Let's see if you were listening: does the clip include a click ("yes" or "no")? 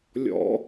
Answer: no